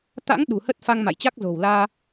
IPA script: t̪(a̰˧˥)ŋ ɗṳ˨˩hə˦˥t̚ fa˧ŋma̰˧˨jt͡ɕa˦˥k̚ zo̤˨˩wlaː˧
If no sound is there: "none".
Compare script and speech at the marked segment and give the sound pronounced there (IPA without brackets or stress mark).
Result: a̰˧˥